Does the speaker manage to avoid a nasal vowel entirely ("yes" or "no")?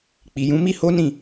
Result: no